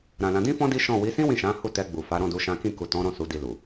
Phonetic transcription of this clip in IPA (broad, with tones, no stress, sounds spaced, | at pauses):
ɾ ã˨ l ã˨˦ d ĩ˦ f ɔ̃˦ d i˦ ʃ ɔ̃˦˨ w i˨˦ s ĩ˦ w ĩ˦˨ ʃ ã˨˦ h u˦˨ t ɛ˧ ɡ͡b u˨ f a˨˦ ɾ ɔ̃˦˨ d u˧ ʃ ã˦ k ĩ˦˨ k u˨ t ɔ̃˨˦ ɾ ɔ̃˦˨ s u˨˦ d i˧ l u˨